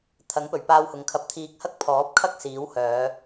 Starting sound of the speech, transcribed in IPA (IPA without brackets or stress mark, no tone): t̪ʰ